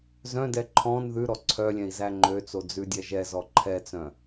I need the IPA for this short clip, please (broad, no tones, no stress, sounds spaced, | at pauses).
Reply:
z œ̃ d ɛ ǃʰ ɔ̃ n ð ʉ ɾ ɔ ǀʰ œ lʲ ɛ̃ i̯ z æ ŋ͡ǃ ø t͡s o d͡z ʉ dʲ ɛ ʒ ɛ z ɔ ǃʰ ɛ t͡s œ̃